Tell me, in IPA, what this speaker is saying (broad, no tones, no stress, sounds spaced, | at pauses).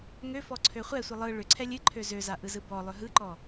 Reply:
ŋ ø f ɔ ǀʰ ø χʷ ɛ sʷ ɨ lˠ ɯ ɭ ʏ ǀʰ ɛ lʲ ɨ ǃʰ ø z ø z a ʔ ɯ z ɯ b ɔ lˠ ʏ ɦ ɯ ǃ ɔ